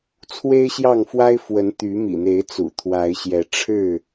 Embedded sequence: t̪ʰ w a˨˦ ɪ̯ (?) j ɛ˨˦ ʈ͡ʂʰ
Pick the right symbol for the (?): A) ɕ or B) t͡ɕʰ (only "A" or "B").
A